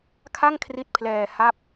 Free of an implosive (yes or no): yes